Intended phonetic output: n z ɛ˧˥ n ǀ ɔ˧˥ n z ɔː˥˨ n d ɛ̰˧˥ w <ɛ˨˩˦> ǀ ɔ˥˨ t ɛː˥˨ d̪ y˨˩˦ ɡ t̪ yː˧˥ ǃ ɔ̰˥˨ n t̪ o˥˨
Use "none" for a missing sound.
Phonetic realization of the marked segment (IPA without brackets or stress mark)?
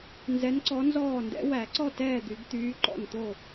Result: æ˨˩˦